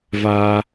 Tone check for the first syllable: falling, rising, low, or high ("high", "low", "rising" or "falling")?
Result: high